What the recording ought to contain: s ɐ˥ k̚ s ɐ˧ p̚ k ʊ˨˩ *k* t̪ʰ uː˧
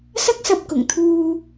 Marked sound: incorrect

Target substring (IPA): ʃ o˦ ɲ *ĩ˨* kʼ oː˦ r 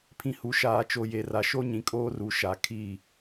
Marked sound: correct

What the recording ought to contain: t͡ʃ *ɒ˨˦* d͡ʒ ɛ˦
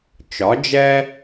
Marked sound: correct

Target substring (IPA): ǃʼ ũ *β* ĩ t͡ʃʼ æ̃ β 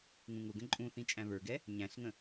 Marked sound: incorrect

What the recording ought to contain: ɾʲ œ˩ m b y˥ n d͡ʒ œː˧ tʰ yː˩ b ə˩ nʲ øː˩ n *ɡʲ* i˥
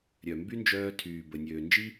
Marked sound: incorrect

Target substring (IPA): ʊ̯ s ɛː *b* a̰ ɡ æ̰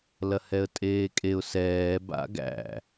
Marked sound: correct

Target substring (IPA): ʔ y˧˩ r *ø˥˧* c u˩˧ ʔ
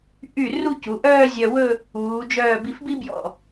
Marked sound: incorrect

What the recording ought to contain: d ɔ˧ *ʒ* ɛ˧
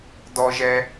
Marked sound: correct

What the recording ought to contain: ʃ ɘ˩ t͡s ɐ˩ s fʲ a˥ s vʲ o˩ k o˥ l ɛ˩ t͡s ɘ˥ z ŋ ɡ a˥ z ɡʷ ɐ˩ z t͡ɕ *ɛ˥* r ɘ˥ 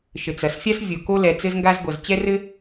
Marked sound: correct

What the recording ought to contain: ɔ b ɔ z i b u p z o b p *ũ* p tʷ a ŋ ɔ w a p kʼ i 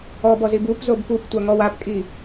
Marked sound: incorrect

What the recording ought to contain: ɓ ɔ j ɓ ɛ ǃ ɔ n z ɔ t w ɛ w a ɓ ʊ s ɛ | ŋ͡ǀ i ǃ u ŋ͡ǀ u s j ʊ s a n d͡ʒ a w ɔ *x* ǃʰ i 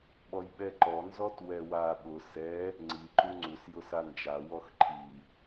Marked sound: correct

